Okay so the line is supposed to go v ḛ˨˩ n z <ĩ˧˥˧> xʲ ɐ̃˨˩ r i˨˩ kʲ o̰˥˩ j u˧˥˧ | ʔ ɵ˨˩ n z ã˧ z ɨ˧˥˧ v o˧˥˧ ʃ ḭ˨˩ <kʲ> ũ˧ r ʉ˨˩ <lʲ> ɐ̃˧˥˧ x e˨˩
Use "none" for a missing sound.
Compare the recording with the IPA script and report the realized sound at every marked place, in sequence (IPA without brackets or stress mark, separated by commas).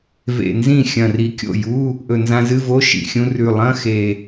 ĩ˥˩, xʲ, lˠ